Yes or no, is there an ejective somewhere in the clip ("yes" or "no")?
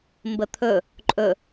yes